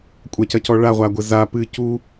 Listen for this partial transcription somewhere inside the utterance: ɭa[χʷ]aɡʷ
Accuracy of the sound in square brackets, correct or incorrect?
incorrect